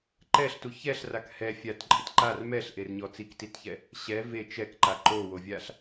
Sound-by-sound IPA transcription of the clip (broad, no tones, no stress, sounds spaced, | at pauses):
ǃ ɛ ɬ t u ç ɛ ɬ r a k h ɛ fʲ a t ǃʼ ɪ t ǃ a r m ɛ ɬ ʔ e r ɲ ɔ t͡s i k t i t ç ɛ | ɕ ɛ v e t͡ʃ ɛ k ǃ a ǃ o w o vʲ a ɬ